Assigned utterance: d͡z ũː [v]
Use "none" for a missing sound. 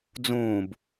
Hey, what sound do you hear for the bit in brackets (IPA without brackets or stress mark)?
b